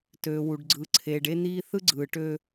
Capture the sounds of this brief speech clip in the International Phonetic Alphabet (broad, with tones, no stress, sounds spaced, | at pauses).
t øː˨ w u˨ ɖ ɡ͡ǀ ɯ˨ ǀʰ eː˨ ɖ e˦ n̪ iː˦ θ ɯ˦ ɡ͡ǀ ɯː˨ ʈ ø˦